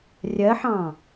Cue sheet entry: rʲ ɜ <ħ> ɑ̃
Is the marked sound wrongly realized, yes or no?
no